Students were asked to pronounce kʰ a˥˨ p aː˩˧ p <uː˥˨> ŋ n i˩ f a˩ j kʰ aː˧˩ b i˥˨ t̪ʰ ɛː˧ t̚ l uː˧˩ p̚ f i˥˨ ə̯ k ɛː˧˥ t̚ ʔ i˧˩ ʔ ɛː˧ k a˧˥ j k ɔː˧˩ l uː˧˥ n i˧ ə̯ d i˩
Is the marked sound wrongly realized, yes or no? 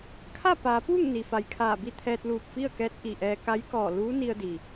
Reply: no